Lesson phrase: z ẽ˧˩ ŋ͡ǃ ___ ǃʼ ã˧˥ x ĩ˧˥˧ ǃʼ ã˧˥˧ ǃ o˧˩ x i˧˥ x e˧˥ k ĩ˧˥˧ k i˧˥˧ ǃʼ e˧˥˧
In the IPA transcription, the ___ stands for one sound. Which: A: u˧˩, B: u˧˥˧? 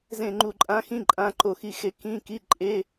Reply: A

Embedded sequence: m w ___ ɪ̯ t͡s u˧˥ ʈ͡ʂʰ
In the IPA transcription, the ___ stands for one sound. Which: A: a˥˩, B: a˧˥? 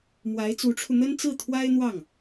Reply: B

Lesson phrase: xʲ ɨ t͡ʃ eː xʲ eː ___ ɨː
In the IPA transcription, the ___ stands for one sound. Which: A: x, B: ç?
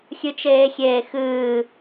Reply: A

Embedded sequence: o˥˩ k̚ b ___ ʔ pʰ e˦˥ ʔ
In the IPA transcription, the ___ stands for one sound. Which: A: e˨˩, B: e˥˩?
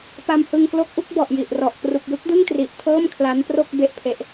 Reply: B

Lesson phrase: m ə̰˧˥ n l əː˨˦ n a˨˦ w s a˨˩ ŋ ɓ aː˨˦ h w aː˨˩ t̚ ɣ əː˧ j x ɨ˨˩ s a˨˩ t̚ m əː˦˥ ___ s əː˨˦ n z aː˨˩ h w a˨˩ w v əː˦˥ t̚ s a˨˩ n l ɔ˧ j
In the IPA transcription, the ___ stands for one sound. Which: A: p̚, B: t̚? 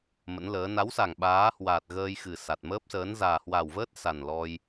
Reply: A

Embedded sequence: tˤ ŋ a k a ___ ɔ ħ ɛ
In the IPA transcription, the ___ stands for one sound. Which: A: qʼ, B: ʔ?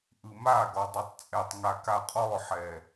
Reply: A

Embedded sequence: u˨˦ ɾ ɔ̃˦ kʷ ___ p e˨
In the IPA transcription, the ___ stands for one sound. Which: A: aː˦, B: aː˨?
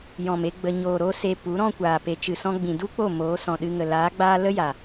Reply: B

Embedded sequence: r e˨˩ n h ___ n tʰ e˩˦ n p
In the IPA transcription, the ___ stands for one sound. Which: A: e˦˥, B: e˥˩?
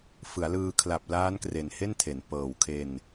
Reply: B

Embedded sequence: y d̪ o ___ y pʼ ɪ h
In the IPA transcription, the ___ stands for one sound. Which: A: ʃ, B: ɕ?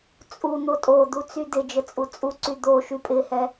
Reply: A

